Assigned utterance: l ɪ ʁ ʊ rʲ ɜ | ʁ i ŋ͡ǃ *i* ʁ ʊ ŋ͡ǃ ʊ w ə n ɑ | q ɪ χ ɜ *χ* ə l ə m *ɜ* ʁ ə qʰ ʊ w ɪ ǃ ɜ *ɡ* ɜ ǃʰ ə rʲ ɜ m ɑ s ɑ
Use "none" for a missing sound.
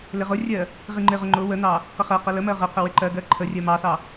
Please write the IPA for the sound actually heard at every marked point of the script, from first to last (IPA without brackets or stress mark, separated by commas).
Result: ɪ, q, ɜ, ɡ